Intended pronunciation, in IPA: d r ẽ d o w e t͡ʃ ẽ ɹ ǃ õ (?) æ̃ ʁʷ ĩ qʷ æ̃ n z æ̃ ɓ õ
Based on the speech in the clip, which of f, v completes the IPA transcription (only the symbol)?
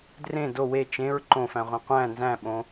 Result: f